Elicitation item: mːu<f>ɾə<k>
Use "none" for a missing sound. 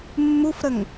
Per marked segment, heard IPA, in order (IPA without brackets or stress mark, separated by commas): f, ŋ